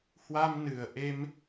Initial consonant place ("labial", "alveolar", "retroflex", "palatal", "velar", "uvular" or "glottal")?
glottal